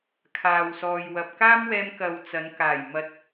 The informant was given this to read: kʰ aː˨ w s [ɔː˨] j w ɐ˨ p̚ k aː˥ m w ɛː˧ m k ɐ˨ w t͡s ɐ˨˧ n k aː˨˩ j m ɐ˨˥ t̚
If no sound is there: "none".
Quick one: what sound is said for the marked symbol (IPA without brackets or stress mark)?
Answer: ɔː˨